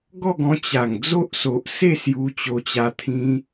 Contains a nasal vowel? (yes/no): yes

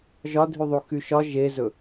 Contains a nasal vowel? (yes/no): no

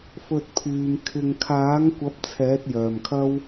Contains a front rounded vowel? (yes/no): yes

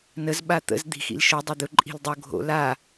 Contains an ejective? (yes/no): yes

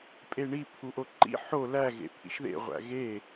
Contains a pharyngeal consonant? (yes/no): yes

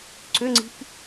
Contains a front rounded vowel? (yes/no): yes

